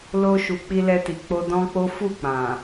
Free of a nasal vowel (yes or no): no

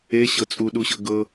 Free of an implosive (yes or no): no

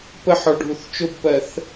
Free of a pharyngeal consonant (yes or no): no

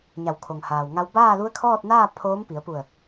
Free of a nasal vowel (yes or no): yes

